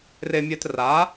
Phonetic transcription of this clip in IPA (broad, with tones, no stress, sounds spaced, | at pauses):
r e˧ mʲ ɛ˧ t r a˨˥